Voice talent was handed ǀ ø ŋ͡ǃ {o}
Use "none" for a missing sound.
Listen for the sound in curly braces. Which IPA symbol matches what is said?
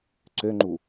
u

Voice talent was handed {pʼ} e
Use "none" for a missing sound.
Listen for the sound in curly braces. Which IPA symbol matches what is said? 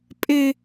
pʼ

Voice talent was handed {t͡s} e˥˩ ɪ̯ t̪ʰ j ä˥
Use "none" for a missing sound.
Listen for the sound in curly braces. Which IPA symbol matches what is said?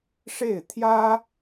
ʂ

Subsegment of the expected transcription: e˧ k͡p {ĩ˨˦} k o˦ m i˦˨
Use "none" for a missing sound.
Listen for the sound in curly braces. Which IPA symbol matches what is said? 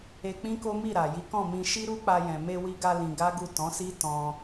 ĩ˦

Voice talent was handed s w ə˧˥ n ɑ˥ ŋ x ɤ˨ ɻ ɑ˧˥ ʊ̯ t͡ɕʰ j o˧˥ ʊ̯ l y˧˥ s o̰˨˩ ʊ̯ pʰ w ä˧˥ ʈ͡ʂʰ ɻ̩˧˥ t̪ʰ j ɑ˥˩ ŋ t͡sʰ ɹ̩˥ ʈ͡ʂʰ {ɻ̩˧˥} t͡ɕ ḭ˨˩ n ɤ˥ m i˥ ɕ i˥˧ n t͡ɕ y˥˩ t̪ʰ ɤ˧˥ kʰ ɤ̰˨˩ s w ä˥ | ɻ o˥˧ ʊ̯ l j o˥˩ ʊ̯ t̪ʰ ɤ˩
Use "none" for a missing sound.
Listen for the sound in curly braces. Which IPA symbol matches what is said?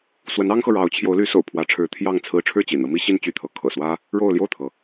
ɻ̩˥˩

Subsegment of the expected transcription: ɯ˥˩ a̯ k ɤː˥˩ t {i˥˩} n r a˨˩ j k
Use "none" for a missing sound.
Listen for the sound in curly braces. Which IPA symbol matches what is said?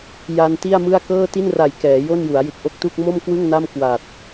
i˥˩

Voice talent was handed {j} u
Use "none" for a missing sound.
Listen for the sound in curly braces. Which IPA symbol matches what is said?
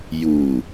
j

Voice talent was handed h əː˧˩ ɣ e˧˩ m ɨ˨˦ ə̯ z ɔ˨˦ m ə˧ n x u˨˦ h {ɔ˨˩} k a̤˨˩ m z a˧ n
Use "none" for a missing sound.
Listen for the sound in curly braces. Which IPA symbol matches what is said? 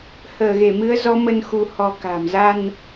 ɔ˨˦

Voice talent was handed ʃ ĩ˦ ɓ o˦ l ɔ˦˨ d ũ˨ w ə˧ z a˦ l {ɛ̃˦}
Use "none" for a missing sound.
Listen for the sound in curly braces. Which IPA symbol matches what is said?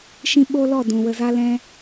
ɛ̃˦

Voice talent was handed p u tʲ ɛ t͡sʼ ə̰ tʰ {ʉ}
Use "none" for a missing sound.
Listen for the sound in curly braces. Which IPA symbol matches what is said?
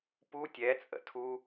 u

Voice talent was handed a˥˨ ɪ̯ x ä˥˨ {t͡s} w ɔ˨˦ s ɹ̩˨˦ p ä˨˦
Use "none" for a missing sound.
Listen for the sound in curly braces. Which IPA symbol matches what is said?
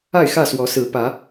s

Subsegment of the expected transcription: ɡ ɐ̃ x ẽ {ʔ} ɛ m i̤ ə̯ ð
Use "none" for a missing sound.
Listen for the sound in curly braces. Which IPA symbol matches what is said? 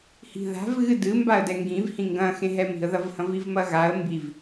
ɦ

